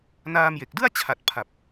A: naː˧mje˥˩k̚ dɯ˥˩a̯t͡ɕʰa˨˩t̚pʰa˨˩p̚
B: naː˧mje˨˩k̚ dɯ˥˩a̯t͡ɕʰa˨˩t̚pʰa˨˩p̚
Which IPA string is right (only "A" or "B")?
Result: B